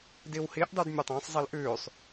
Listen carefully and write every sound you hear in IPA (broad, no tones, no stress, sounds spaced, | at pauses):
d i w h i ʔ dˤ ʉ d mʲ ɵ tˤ æ̃ sˤ zˤ i l ʔ ʉː sˤ